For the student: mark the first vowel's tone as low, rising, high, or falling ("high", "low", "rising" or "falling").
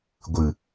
low